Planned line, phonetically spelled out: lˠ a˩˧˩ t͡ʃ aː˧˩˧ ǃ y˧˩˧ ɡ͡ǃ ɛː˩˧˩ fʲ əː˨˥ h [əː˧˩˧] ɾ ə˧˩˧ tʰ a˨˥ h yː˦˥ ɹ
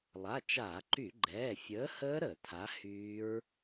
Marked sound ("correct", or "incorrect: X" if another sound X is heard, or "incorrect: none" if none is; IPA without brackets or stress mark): incorrect: əː˦˥